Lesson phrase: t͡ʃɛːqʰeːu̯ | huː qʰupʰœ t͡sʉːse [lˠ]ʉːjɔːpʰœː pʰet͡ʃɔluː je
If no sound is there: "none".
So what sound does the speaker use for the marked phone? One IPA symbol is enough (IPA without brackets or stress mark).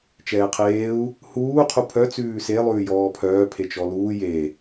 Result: lˠ